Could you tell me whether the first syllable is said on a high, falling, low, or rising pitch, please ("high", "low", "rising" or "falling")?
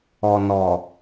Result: low